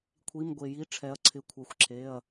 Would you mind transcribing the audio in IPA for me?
kʷʰi˩˧˩mɡʷe˩ji˩˧˩ ʈ͡ʂʰɛ˩˧ɐ̯ǀʰɪ˩˧˩ kʷʰɛ˩˧xʷǁʰe˩˧˩ɐ̯

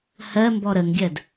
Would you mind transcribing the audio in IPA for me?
hɜ mbɔɾəŋɡʲɜd

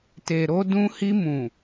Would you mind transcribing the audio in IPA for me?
te˨ɾo˧ dũ˧hi˧ mũ˨

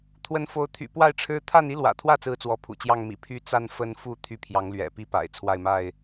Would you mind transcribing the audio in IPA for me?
t̪ʰwə˨˦nfo˨˦ʊ̯t̪ʰy̰˨˩ pwa˥˨ɪ̯ʈ͡ʂʰɻ̩˦ t̪ʰa˥˨ni˦lwä̰˨˩t̪ʰwä˥˨ t͡sɹ̩˦t͡swɔ˨˦pʰṵ˨˩t͡ɕjɑ˥˨ŋ mḭ˨˩ pʰy˦t͡sa˥˨n fə˦nfu˥˨ t̪ʰy˥˨pʰjɑ˨˦ŋlɥɛ̰˨˩ pi˥˨pa̰˨˩ɪ̯ t͡sʰwa˥˨ɪ̯ma˥˨ɪ̯

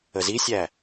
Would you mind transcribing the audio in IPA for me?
əzisʲæ

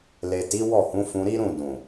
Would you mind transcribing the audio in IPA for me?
le˨ti˨˦ wɔ˦˨hũ˨˦ fũ˧ɾi˦ɾũ˦˨ dũ˨

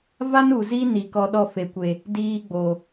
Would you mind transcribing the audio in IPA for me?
va˦nu˨zi˦ni˨ kɔ˦ɗɔ˦fe˨kʷe˨ | diː˦ɡ͡bo˨

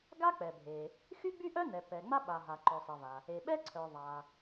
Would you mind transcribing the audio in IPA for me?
ɡa˥k͡pɛ˩bʱe˩ | xy˥ɡ͡by˥ʔœ˥nɛ˩ pɛ˩ ŋ͡ma˥ɓa˩ ɦa˩ǃœ˩sˤɛ˩va˩ | e˩ɓɛ˥ ǀʰœ˩ ðˤa˩

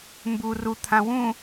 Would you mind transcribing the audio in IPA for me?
mbu ru t̪ʰãwũ

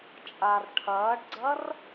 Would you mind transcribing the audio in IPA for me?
t͡ʃʼar ʈʰɐːɖɡ͡ǀɐr

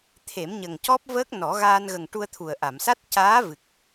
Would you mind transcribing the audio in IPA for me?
t̪ʰe˨˩˦mɲə˨˩ŋcɔ˦˥p̚vəː˦˥k̚ nɔ˨˩˦ɣaː˧nɣə˨˩ŋ ʈu˧ə̯t̪ʰu˨˩ə̯ʔa˨˩˨msa˦˥t̚ caː˧˥vɨ˨˩k̚

